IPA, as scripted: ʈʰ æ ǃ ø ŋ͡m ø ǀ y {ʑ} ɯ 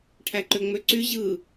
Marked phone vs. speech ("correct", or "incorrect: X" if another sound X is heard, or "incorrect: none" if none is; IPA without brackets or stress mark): correct